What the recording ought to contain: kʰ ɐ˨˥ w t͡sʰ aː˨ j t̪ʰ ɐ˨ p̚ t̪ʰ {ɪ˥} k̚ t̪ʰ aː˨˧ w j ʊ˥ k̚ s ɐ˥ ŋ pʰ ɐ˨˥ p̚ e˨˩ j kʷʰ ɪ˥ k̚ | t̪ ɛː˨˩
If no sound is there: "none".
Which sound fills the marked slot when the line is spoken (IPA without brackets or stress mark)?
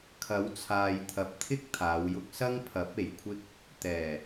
ɪ˥